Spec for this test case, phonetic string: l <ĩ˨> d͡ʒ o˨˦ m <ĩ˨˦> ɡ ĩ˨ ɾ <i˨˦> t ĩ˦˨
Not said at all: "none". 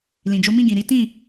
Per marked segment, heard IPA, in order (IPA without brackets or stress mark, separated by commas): ĩ˨, ĩ˦˨, i˨˦